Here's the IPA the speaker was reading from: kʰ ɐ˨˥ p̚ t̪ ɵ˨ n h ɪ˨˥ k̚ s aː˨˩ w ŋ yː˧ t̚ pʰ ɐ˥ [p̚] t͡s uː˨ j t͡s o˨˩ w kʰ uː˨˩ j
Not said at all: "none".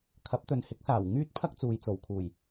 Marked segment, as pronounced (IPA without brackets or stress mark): k̚